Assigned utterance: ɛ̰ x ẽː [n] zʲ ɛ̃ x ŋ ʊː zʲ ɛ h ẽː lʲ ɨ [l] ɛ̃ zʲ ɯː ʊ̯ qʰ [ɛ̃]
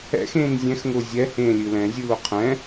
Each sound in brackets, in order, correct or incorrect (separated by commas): correct, correct, correct